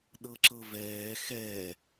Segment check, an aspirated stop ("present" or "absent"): absent